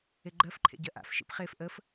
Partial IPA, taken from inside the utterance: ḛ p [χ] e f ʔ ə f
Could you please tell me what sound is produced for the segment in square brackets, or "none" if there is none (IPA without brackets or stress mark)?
χ